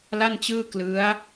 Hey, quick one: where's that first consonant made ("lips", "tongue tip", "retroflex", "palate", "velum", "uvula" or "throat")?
tongue tip